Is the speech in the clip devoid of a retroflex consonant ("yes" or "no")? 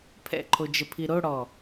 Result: no